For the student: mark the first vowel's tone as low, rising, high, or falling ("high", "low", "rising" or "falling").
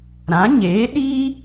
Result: rising